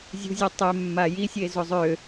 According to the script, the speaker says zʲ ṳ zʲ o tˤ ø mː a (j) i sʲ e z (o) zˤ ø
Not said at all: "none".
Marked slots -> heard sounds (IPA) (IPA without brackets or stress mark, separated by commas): j, o